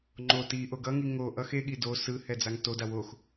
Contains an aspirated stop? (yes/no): no